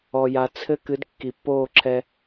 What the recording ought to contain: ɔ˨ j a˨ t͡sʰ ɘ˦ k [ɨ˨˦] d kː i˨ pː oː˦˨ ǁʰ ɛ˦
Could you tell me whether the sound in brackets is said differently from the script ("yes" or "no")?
no